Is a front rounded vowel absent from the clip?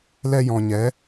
yes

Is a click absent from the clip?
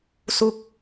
yes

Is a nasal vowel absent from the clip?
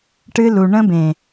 no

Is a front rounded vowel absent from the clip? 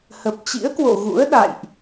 yes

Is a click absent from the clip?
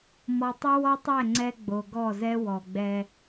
no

